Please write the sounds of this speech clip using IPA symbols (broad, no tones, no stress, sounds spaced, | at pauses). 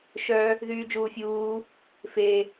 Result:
ʃ œ | ð yː d͡ʒ uː fʲ uː | f e